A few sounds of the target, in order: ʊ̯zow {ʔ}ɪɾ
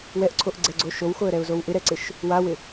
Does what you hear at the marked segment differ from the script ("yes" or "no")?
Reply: no